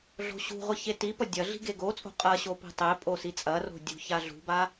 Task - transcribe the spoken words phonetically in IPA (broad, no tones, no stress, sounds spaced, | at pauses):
ɮ o̤ ɕ ṳ ʁʷ ʌ ç e t i p ʌ dʲ ɐ ɮ i̤ ɡ e ɡ o t͡sʼ o̤ qʼ ɐ ɕ o p i̤ tˤ e pʼ o s i t͡sʼ ɐ r o̤ dʲ ṳ ç a ɮ ṳ b a